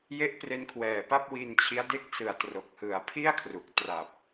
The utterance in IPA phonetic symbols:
j e˦˥ ʔ p r e˦˥ n kʰ w ɛː˨˩ p a˥˩ p̚ w i˧ n t͡ɕʰ i˦˥ a̯ d e˦˥ k̚ s ɯ˨˩ a̯ t r o˨˩ k̚ h ɯ˨˩ a̯ pʰ i˥˩ a̯ kʰ r u˨˩ k̚ t r a˨˩ p̚

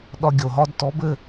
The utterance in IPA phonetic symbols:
ɗ ɒ˧ ɡʲ o˨ ɦ ɒ˦ d t ɔ˨˦ b ɘ˦˨

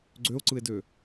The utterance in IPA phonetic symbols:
ɡ͡ǀ ø o̯ ǀ ɯ e̯ d ø

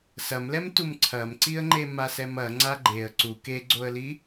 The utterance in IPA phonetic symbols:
s ɐ m l ɛ m t u m ǀʰ ɐ m ǀ i ə̯ ŋ͡ǃ e m a s ɛ m ɐ ŋ͡ǀ a ɡ͡ǃ e ə̯ ǀ u k e ɡ͡ǀ o ə̯ l i

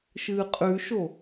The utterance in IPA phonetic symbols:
ʃ ɨː qʼ ʉ ʃ o

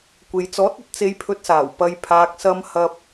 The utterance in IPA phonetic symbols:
kʷ e˨ j t͡s ɔː˨˥ t̚ ɐ˨ t̚ t͡s e˧ j pʰ ɵ˧ t̚ s aː˨˩ w p ɐ˨ j pʰ aː˨ k̚ s ɐ˧ m h ɐ˧ p̚

